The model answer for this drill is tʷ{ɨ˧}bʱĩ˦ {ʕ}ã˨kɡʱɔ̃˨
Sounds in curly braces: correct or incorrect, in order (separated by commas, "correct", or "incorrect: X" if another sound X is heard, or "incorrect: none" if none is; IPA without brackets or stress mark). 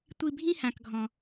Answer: incorrect: i˧, incorrect: h